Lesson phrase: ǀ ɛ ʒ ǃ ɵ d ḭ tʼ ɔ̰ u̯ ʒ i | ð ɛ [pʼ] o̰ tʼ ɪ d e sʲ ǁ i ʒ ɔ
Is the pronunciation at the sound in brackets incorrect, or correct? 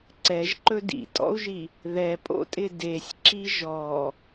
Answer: correct